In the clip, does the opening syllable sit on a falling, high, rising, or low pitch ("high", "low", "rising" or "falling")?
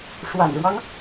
low